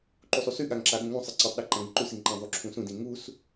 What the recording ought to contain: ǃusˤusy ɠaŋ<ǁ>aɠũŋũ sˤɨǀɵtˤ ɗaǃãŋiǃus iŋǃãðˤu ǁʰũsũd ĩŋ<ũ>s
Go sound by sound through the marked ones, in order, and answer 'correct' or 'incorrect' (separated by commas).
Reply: correct, incorrect